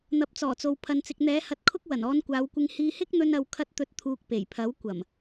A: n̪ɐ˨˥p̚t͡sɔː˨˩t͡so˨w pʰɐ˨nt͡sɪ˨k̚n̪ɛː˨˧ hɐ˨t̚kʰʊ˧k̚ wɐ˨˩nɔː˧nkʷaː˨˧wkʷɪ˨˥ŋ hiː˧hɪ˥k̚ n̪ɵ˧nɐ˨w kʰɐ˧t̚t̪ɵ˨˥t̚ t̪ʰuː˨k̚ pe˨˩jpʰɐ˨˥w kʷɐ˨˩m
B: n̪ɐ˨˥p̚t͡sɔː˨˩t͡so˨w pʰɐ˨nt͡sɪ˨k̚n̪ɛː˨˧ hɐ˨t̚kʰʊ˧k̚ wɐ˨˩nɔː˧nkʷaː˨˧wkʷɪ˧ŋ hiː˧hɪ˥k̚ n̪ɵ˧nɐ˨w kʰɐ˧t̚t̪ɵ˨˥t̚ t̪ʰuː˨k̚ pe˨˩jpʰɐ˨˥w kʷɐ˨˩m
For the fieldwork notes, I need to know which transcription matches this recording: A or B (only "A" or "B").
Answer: B